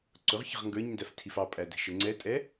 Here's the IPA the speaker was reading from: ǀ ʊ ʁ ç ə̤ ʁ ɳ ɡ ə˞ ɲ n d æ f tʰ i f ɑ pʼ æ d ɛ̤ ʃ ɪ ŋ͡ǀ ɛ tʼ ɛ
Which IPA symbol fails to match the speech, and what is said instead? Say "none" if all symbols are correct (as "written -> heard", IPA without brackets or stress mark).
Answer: ɳ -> ŋ